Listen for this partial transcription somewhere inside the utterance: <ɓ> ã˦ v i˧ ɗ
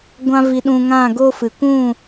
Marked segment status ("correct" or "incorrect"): incorrect